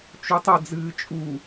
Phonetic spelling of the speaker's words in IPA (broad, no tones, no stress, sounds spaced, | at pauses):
t͡ʃ u tˤ ɐ d͡z ɨː t͡ʃʼ u